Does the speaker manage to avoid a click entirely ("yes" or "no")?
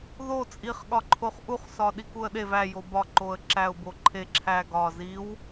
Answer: no